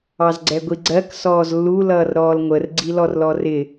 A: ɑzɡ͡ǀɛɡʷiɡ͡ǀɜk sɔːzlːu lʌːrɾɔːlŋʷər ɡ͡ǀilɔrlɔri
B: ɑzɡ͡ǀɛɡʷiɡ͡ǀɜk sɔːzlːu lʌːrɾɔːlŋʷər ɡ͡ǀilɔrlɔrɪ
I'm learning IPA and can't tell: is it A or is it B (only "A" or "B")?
B